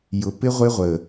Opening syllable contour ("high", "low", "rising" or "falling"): low